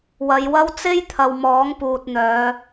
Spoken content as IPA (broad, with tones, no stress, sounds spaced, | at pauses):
w ɐ˨˧ j w ɐ˥ w t͡s e˥ j t̪ʰ ɐ˨ w m ɔː˨˥ ŋ p uː˨ t̚ n̪ œː˨˧